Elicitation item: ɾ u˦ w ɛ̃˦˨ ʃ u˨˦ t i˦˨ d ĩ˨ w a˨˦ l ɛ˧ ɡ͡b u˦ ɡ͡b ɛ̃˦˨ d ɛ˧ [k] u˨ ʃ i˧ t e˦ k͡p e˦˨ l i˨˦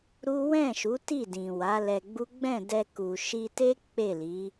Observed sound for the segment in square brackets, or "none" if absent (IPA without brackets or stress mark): k